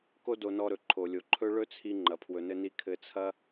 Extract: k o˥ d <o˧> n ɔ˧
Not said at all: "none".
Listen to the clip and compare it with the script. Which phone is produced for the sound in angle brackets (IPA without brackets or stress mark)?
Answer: o˧